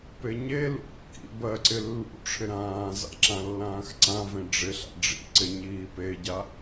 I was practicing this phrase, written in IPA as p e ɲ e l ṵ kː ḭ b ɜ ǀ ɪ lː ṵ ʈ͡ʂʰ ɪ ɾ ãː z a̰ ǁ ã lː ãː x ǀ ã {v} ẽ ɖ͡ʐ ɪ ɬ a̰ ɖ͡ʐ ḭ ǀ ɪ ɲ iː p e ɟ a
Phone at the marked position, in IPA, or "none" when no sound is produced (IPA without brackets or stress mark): v